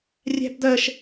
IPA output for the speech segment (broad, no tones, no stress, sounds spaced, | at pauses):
rʲ æ̤ b d̪ ɜ ʃ